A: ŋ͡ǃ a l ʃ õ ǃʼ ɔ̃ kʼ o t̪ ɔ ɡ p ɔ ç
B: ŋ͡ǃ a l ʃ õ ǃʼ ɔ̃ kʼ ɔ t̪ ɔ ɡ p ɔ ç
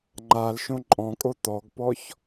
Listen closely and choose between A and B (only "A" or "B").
A